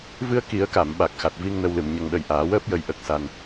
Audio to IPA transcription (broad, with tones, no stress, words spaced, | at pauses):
vɨ˧ə̯ ki˨˩˦ə̯ka˨˩˨mɓa˨˩k̚ xa˨˩t̚vi˧ŋ nə˧wlɨ˨˩m ɲə˨˩ŋɗə˨˩j ʔaː˨˩˦wəː˦˥p̚jə˧j ʔə˦˥k̚sa˧n